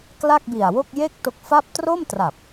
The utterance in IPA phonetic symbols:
kla˥˩k̚bi˨˩a̯wo˥˩k̚ je˥˩k̚ to˦˥k̚fa˥˩p̚ tro˥˩mtra˨˩p̚

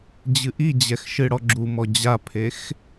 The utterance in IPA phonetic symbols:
d͡ʑɨʔid͡ʑɛx ʃɨɽɔɡ͡ǁumɔ d͡ʑapʰex

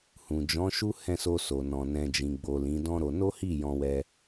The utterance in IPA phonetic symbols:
hũ˨d͡ʒɔ̃˨˦ʃu˦ hɛ̃˦˨so˧so˨nɔ̃˨ nɛ̃˨d͡ʒĩ˨ɡ͡bo˨ lĩ˨˦dɔ̃˦ɾo˧ no˦hi˦˨ jɔ̃˧wɛ˧

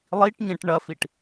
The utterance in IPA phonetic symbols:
lˠiʈ ɲẽʈɳɐfiʈ

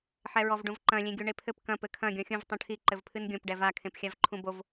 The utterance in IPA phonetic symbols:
ħɛɹɔvɖũvǃɐ̃ lʲẽɡʲuɳepʰɘp kɐ̃ pɘkʰɐ̃ ɡʲɔ̃xʲũv tˤũʈʰi ǃɘvpʰɨnɡʲõp ɖɛva kʰẽpxʲavǃʰũbov

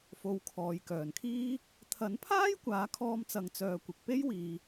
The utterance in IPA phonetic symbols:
fo˨˧wkʰɔː˨j kœː˨˩nkʰiː˥ | t̪ʰɐ˨˥npʰaː˥j kʷaː˨˥kʰɔː˧mt͡sɐ˨ŋ t͡sœː˧kʷɪ˨k̚ pe˥j wiː˨

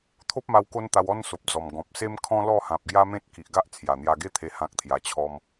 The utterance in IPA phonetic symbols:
t̪ʰo˦p̚ma˧w ko˦nt̪a˧wɔ˦n so˨p̚d͡zɔ˨˩m ɡɔ̃˨p̚se˦m kʰɔ̃˦lɔ˥˧hã˨p̚ ɡja˦mẽ˦t̚ki˨ʔɡa˦ʔ t͡sʰja˨˩n̪ja˧ɡe˦t̪ʰe˧ hã˦k̚t̪ʰja˧t͡ɕʰɔ˦m

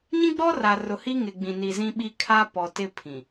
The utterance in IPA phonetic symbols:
ɲĩ˦ɡ͡bɔ˦ra˨ rʊ˨hi˦ ŋɪ˨ɡ͡bĩ˨ni˨ zĩ˦ɓi˦ kʰa˦ pɔ˨ tɪ˦pʰĩ˨

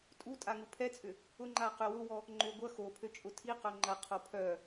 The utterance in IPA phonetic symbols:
tʼu tʼaŋupʰɛt͡sʼʏ | ʊ ŋ͡ǃaqøwʊwɔ | ŋ͡ǃʏ ɡʷɐ xopʰø t͡ʃʼʊtʰiqœ ŋ͡ǃɐqʰo pʰœ

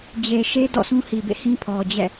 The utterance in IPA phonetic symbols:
d͡ʑe˨ʃe˦ dɔ̰˦˨sũ˦hi˨bḛ˦˨ hĩ˦pʰɔ˨d͡ʑɛ̰˦˨

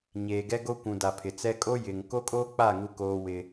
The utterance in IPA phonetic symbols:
ɲeː˨ɡɛ˦ɡo˦kʷũ˨ da˨pʰɪ˨t͡sɛ˦ kʼo˦ jɪ˨ŋ ko˦kʼoː˦k͡pa˦˨ ŋu˦koː˦wɪ˦

